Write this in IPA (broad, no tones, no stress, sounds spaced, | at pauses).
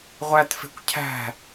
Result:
ʁʷ æ t f e̤ kʷ cʰ æ̤